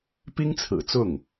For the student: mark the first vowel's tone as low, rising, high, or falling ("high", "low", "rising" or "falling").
high